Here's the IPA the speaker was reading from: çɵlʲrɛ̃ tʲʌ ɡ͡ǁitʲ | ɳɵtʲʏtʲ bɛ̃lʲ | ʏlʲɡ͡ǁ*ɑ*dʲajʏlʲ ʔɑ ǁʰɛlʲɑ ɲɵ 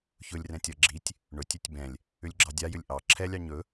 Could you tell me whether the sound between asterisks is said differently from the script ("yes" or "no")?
no